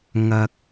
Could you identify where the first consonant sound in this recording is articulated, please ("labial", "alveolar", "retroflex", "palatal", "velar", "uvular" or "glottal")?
velar